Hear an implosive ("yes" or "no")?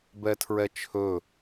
no